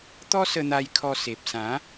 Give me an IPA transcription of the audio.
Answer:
t̪ ɔ˦ s ə˧ n̪ a˧ j kʰ ɔ˧ s e˨ p̚ s ã˨˦

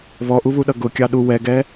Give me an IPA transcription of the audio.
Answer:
β ɔ ʔ u β u ɗ ʌ ɡ ʊ kʲ ɑ ɗ u w ɛ ɡ ɛ

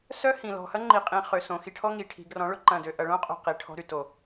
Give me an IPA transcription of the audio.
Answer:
s œ˦ h ĩ˨ l ɔ̤˨ h ɐ˦ ŋ͡ǃ i˨ qʼ ĩ˨ χ ø˨ s õ˨ x i˧ ʈʰ ɔ˦ ŋ i˨ ʈʰ i̤˨ ɡ r ɔ̃˨˦ ɭ ʊ˧ ǃ ɐ̃˦˨ d ø˦ ʔ ɐ˨ ɭ õ˦ qʼ o̤˨ q i˨ ʈʰ ɔ̤˧ ɾ y˨ t o˨

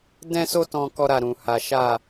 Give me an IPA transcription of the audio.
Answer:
d ɛ̃˦ s o˦ t ɔ̃˦ k ɔ˦ ɾ a˦˨ ɾ ũ˧ h a˦ ʃ a˦˨

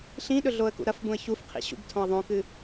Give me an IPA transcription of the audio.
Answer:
ɬ ĩ ɗ ɵ ɮ o ə̯ k ṵ ɾ ɐ f b ũ ə̯ ç u f qʰ ḭ ɕ ṵ b tʰ õ ə̯ ðˤ õ k ɨ

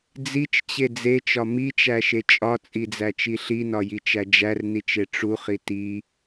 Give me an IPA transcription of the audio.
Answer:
d͡z i t͡ʃ t͡ɕ e d͡z e t͡ʃ ɒ m i t͡ʃ æ ʃ e t͡ʃʼ ɒ t͡sʼ i d͡z æ t͡ʃ i ɬ i n ɒ j i t͡ʃ æ d͡ʒ æ r n i t͡ʃ e ʈ͡ʂ u χ i t i

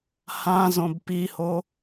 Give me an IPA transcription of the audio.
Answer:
h ã z õ b p i h o

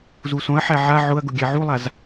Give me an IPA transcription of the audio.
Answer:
z u s õ ɐ̯ ħ æ ʕ a ʕ ʊ ɐ̯ ɡ ʊ ɡʲ æ ʕ u lˠ a z

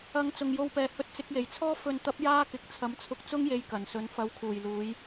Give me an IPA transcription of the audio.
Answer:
ɐ˨ ŋ t͡s ʊ˨˩ ŋ j o˨ w p ɛː˨˩ h ɵ˧ t̚ t͡s ɪ˧ k̚ j e˨˩ j t͡sʰ ɔː˥ f ɵ˨ n t̪ ɐ˨˥ p̚ j aː˥ k ɪ˨ k̚ t͡sʰ ɐ˨˧ m t͡sʰ ʊ˧ k̚ t͡s ʊ˥ ŋ j e˧ j k ɐ˨˩ n s ɵ˧ n f ɐ˨˥ w kʰ uː˨˩ j l uː˨˧ j

